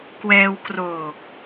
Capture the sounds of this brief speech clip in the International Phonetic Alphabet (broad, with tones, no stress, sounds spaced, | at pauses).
k w ɛː˧ w k r oː˨˩ k̚